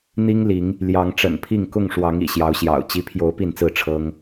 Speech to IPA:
n̪ i˦ ŋ l i˨˦ ŋ | l j ɑ˨˦ ŋ ʈ͡ʂ ə̰˨˩ n pʰ i˥˨ ŋ k ʊ˥˨ ŋ ʂ w ɑ˨˦ ŋ ḭ˨˩ ɕ j ɑ˨˦ ʊ̯ ɕ j ɑ̰˨˩ ʊ̯ t͡ɕ i˨˦ pʰ j o˨˦ ʊ̯ p i˥˨ n t͡s ɹ̩˥˨ ʈ͡ʂʰ ɤ˦ ŋ

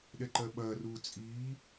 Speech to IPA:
ɗ ɛ ǃ ɜ ɓ ɐː r uː t͡sʼ iː

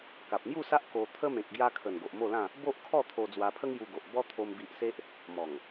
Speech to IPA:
k a˨ p̚ m j u˥˧ s a˦ ʔ k o˧ t̪ʰ ə˦ m ẽ˨ k̚ ɡ j a˧ kʰ ə˨˩ n ɡ o˨ ʔ m o˥˧ l ã˥˧ | b o˦ ʔ kʰ ɔ˥˧ t̪ʰ o˧ d͡z w a˧ pʰ ə˦ ŋ j u˧ ɡ o˨ ʔ b ɔ˦ t̪ʰ o˦ m b i˦ ʔ s e˦ ʔ | m ɔ˨˩ ŋ

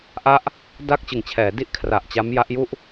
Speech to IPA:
ʔ a˥˩ ʔ | d a˥˩ k̚ t͡ɕ ɯ˨˩ ŋ t͡ɕʰ ɛː˩˦ d i˥˩ ʔ kʰ r a˨˩ ʔ t͡ɕ a˦˥ m j a˦˥ ʔ j u˥˩ ʔ

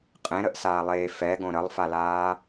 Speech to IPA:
qʼ ẽ ɾ ə ʔ s aː lˠ eː f ɛ ɡ õ ɾ ə lˠ f a l aː

